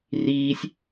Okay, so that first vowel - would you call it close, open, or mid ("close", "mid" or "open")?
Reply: close